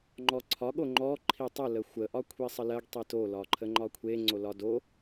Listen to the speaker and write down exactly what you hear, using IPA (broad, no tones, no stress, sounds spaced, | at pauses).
ŋ͡ǃ ɔ ǀʰ ɒ ɠ o ŋ͡ǃ ɔ ǃʰ i tˤ ə l ə xʷ ə ʔ ɒ kʷʰ i sˤ ə l ɜ ɡ tˤ i t o l ɒ ǃʰ ə ŋ͡ǃ ɒ kʷʰ e ŋ͡ǀ o l ɒ d o